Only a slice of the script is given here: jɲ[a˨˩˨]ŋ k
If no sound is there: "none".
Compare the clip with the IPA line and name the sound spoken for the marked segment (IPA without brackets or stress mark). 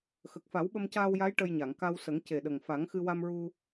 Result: a˨˩˨